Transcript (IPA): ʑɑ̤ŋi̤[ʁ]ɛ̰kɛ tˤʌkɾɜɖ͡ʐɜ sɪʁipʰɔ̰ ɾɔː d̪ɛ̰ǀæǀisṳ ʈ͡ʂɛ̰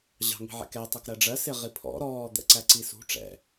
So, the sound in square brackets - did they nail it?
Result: no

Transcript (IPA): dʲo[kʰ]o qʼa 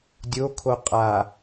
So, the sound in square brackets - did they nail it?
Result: yes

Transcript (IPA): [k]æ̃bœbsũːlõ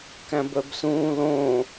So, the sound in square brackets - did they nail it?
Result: yes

